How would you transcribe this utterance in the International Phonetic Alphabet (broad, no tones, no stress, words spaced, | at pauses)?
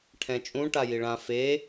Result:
ʈʰɛ̃t͡ʃʼũ ʈajiɭã fe